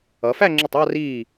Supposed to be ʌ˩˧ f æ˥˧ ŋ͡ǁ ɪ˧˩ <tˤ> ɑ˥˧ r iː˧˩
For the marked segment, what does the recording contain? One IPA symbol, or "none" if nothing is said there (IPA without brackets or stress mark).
tˤ